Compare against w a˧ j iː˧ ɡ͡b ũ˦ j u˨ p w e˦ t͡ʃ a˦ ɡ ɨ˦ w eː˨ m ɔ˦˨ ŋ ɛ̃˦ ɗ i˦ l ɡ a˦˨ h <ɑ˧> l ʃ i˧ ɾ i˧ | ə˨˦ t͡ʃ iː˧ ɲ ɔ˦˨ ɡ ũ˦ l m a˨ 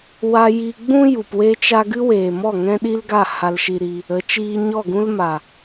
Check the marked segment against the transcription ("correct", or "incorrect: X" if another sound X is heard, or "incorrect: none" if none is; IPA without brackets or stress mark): incorrect: a˧